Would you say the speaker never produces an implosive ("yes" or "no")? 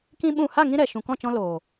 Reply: no